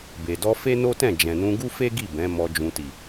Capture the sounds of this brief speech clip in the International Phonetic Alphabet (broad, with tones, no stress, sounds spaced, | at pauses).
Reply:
b e˨ d ɔ˧ f e˦ n o˦ t ɛ̃˦˨ d͡ʒ ɛ̃˨ n ũ˧ ɡ u˦ f e˦ ɡ i˦˨ b ɛ̃˨˦ m ɔ˧ d͡ʒ ũ˨ t i˨